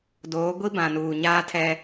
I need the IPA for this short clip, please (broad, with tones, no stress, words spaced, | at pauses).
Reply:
doː˨˦ ɡʷi˦bã˨nuː˨ ɲaː˦tʰɛ˦